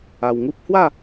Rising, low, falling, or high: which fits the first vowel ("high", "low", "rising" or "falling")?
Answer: low